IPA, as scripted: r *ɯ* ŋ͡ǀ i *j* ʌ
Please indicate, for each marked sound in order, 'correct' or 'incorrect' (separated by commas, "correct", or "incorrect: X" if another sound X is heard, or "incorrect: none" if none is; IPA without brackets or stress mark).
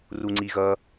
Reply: incorrect: u, incorrect: ɣ